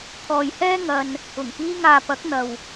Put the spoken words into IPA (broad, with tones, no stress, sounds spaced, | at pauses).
kʰ ɔː˨ j h ɛː˥ ŋ ɐ˧ n | ʊ˨˩ ŋ k iː˧ ŋ aː˨ p ɐ˨˥ k̚ n̪ ɐ˨ w